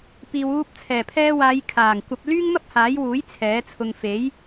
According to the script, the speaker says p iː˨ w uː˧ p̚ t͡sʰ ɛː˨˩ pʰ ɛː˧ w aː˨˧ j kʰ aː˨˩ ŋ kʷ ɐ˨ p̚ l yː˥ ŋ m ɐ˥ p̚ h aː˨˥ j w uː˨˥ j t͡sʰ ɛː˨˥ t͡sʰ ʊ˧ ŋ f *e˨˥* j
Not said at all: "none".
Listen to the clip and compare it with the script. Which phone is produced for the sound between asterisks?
e˨˥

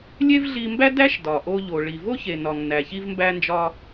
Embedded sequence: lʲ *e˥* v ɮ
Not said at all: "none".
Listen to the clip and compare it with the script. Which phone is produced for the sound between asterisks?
e˥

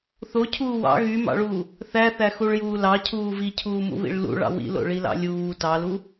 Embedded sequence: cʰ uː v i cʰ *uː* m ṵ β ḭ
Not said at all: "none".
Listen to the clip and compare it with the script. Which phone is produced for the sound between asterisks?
uː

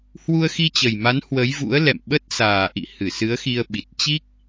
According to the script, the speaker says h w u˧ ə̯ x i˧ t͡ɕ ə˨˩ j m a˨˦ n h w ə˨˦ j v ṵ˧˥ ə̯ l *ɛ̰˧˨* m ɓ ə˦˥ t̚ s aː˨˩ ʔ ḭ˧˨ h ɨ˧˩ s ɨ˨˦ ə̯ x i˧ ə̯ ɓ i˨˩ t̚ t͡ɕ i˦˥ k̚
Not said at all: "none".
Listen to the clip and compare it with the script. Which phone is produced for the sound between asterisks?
ɛ̰˧˨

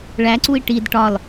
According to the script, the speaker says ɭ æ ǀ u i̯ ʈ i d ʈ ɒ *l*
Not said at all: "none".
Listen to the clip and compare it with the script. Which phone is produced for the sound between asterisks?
l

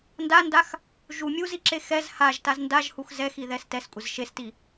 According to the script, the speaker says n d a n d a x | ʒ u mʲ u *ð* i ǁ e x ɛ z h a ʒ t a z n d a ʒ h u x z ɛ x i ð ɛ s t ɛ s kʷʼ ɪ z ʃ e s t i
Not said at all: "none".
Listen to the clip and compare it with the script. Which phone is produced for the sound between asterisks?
z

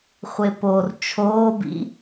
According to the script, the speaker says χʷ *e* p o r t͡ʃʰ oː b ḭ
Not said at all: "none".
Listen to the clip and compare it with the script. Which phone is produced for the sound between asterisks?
e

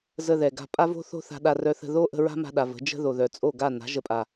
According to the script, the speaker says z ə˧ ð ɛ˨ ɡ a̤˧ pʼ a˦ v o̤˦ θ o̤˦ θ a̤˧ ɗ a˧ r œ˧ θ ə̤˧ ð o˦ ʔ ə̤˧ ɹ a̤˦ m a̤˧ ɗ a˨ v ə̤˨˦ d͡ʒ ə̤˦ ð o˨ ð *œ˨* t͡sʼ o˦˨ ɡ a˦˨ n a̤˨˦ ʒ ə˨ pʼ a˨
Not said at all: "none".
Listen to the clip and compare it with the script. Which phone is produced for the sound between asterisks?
œ˨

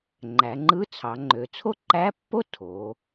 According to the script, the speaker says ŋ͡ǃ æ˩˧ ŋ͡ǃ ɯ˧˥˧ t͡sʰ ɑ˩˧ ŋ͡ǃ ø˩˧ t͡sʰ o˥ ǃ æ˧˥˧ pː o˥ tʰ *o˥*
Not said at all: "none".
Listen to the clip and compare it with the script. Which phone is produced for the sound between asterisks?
o˩˧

